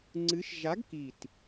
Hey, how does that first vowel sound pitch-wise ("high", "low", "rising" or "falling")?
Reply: rising